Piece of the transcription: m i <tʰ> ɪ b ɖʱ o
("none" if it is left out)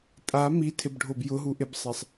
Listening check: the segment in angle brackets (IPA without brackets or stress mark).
tʰ